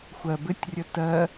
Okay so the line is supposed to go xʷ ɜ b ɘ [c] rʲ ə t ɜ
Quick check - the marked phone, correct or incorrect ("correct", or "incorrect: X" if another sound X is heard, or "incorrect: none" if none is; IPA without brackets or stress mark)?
incorrect: tʲ